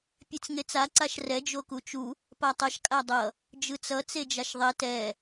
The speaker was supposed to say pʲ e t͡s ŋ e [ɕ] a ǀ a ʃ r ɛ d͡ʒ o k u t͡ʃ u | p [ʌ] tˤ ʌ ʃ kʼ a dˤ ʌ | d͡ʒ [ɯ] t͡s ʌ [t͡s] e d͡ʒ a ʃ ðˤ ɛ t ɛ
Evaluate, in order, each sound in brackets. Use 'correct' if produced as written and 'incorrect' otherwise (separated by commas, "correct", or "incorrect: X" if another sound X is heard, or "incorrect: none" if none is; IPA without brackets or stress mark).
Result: incorrect: t͡s, incorrect: a, correct, correct